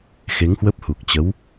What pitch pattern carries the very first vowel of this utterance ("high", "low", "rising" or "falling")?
rising